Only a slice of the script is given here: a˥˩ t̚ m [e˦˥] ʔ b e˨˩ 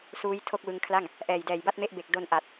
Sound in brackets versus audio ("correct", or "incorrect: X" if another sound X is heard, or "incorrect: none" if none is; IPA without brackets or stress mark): correct